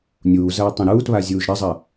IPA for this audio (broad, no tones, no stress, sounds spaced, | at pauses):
nʲ uː z ɐː tˤ ẽ ɾ uː t β a zʲ uː ʒ ɾ ɐ zˤ ɐ